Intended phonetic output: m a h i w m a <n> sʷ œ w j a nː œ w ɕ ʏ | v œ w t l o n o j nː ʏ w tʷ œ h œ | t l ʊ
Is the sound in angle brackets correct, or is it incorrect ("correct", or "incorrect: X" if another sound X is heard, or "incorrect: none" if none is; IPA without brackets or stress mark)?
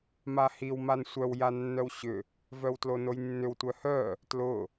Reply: correct